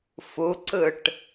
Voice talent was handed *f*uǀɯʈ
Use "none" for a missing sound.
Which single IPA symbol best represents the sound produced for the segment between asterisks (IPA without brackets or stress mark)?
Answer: f